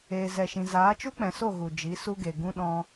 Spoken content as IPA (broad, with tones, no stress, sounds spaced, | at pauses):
eː˨ z ɛ˨ ʃ ĩ˨ z aː˨˦ t͡ʃ u˦ k͡p ɛ̃˨ s o˦˨ ɣ u˨ d͡ʒ i˨˦ s u˦ ɡ e˨ ɡ ũ˦ ɗ ɔ̃˧